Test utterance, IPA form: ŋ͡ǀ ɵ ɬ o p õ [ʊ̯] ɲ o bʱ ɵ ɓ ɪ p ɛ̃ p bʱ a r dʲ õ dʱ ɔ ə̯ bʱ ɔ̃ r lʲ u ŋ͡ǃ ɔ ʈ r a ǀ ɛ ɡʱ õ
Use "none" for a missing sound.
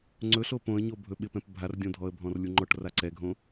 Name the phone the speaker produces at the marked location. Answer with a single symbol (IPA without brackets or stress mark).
ə̯